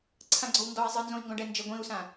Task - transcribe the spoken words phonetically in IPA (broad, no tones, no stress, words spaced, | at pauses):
ǀʰãɡ͡ǀɔwndɔi̯ zˤɨnzõi̯ ŋɡɔ̃ɖɛnd͡ʒɘ ɡʷĩu̯sã